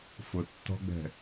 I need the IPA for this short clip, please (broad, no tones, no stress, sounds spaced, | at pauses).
f ʊ tː ɔ̤ ɡ͡b ɛ̤